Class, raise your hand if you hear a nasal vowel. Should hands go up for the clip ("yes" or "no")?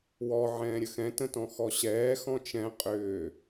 yes